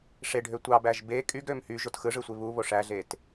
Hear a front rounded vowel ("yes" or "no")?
yes